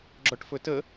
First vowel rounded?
yes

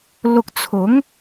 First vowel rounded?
yes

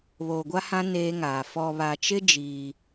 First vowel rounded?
yes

